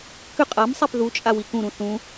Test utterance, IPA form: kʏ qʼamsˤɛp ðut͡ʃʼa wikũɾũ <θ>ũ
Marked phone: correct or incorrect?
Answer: correct